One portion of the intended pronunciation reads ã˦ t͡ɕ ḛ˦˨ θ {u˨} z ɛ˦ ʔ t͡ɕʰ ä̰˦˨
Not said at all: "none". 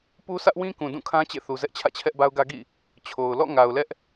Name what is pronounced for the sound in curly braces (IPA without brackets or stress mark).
u˨